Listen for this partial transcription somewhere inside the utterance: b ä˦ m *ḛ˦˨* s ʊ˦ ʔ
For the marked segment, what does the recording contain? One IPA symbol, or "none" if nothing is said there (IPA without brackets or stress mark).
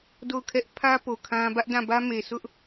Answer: e˨